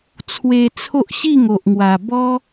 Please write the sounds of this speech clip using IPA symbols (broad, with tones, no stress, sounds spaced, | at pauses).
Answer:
t͡sʰ w e˧ t͡sʰ o˦ ʔ ɕ i˥˧ ŋ o˨ ʔ ŋ w a˨˩ b ɔ˧